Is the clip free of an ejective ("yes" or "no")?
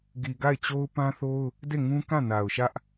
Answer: yes